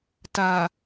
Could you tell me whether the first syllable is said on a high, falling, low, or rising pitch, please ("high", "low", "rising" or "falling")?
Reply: low